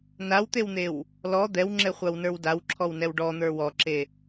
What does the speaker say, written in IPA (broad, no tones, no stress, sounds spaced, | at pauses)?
n a w t̪ e w n̪ e w | l ɔ d̪ ɛ w ŋ͡ǁ ɛ χʷ a w n ə˞ w d a w ǁʰ ɔ w n ɛ w ɖ ɔ n̪ ə˞ w ɔ ǁ e